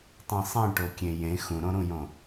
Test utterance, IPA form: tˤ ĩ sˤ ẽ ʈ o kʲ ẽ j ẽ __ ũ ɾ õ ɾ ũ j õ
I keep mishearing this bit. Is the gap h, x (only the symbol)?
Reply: x